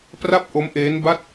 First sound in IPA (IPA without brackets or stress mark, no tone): p